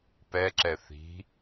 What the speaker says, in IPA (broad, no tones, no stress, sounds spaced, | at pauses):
p ɛ ǁ ɛ θ i̤